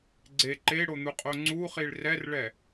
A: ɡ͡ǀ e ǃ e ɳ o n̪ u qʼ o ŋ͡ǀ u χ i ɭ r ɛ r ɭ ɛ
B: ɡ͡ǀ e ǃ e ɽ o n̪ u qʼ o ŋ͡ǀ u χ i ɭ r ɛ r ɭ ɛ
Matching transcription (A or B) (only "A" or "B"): B